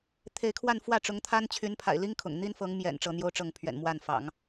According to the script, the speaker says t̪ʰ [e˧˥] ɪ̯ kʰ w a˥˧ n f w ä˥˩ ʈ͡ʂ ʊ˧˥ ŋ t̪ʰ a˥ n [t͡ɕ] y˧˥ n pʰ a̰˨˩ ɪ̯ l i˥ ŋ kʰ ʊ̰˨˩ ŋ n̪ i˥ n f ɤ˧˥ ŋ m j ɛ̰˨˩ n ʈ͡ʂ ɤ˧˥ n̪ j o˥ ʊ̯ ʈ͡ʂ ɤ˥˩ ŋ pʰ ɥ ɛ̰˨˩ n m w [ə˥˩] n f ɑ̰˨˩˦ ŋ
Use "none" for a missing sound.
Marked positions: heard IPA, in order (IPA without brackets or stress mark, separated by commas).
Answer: e˧˥, t͡ɕʰ, a˥˩